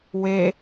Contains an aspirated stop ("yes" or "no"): no